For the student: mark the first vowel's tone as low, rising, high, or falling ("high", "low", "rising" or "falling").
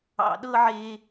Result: low